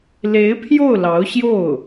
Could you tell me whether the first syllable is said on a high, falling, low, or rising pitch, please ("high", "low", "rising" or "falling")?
rising